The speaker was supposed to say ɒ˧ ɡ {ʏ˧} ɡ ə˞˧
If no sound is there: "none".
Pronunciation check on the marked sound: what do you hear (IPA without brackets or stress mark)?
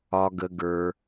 ə˧